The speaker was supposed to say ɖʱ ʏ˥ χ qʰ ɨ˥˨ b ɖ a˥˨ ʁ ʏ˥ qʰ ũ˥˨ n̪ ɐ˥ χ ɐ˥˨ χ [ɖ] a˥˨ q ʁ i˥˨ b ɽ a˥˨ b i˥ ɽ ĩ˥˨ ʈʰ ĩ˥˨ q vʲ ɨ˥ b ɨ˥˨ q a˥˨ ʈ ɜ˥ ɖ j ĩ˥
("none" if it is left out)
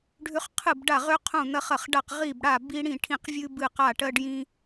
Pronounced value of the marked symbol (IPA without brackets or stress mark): ɖ